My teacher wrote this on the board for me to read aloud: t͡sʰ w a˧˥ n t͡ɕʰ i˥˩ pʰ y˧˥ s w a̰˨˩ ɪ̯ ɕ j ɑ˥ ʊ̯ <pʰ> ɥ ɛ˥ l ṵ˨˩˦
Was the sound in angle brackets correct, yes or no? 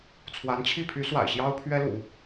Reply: yes